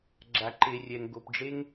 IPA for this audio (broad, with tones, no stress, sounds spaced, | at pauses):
ɡ͡ǁ a˨ ǃ e˨ rʲ ɛ˨ ŋ ɡ o˨ p ɖ͡ʐ e˦ ŋ